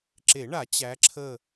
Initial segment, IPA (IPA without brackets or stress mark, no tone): ǁ